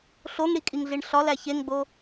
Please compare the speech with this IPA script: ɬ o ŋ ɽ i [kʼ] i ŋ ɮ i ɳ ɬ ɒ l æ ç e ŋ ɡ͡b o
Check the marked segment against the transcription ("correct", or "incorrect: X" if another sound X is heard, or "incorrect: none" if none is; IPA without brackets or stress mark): correct